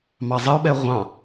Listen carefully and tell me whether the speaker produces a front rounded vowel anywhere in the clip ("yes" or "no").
no